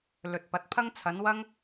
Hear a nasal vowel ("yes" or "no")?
no